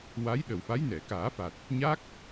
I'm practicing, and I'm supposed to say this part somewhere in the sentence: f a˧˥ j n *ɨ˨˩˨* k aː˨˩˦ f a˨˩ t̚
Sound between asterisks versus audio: incorrect: ɛ˨˩˨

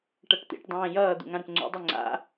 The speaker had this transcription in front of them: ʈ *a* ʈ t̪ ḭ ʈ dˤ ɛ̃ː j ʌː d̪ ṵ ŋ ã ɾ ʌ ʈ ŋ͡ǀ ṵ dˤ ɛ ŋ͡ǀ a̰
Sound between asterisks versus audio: incorrect: ʌ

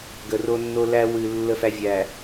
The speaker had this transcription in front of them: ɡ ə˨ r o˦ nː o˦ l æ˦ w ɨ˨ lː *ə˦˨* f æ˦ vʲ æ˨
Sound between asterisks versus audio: correct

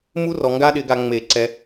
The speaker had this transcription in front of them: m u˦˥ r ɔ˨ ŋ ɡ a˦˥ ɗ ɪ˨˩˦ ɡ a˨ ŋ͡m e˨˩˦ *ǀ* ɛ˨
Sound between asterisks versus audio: correct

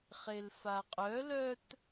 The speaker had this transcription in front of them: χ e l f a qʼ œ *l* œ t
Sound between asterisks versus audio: correct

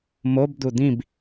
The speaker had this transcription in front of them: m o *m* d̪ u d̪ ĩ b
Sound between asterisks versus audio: incorrect: b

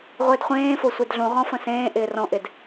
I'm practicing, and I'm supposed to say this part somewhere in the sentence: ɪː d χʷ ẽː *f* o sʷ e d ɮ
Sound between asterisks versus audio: correct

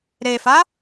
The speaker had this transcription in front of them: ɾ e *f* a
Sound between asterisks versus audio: correct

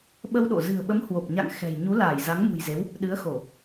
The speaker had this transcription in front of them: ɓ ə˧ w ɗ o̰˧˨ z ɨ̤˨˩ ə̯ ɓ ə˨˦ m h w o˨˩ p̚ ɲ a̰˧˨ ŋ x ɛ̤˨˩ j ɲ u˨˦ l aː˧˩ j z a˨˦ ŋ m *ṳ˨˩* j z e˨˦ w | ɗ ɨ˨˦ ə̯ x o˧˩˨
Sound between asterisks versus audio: correct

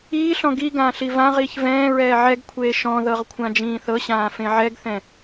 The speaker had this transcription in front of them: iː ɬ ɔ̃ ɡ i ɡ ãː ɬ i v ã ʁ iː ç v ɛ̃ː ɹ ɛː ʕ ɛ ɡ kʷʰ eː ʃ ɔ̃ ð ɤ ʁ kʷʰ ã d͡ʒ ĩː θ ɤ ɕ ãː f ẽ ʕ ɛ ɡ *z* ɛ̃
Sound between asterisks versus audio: incorrect: θ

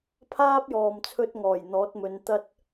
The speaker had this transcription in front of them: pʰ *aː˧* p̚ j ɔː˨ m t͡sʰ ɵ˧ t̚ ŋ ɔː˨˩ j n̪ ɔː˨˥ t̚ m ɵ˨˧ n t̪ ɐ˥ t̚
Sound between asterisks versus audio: incorrect: aː˥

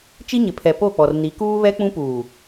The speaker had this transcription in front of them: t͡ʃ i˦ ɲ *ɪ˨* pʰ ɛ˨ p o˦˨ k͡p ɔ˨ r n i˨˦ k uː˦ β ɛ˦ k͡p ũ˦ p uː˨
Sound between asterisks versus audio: correct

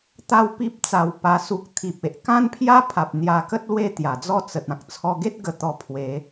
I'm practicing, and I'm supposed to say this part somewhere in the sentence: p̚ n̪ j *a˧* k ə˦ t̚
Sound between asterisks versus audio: correct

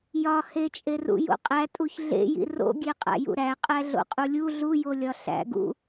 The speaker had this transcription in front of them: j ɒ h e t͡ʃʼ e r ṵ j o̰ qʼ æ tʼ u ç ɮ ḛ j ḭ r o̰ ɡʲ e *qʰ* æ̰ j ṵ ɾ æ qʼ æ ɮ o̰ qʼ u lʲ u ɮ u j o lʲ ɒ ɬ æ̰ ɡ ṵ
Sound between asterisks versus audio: incorrect: qʼ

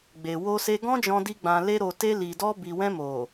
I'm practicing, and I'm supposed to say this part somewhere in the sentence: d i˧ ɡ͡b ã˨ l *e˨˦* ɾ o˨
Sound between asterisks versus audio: incorrect: e˧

